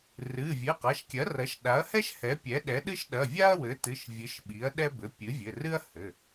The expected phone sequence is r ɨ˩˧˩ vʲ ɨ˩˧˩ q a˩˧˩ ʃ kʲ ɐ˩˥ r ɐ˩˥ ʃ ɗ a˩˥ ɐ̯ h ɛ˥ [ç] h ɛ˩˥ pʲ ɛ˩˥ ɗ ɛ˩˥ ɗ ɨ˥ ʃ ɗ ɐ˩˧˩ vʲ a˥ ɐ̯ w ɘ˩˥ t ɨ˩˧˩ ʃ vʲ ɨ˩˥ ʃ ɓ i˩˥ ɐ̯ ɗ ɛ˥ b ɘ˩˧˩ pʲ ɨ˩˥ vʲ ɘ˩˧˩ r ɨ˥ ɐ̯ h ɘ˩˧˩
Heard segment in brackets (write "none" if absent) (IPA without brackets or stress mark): ʃ